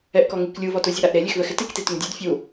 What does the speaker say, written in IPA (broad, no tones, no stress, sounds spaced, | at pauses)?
ɛ ʔ k ɔ ŋ i k lʲ u v ɔ t u zʲ u ɾ a ʔ ɾ e lʲ e x v ɛ x ɪ t i k t i t ʊ n dʲ ɛ d fʲ u